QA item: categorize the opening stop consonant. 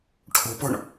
aspirated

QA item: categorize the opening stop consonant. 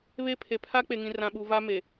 aspirated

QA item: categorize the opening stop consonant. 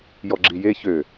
click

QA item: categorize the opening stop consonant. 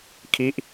aspirated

